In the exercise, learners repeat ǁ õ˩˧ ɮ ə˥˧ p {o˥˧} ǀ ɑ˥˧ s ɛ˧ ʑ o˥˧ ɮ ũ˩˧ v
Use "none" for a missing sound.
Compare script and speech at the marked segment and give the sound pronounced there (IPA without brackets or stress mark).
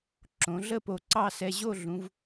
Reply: o˧˩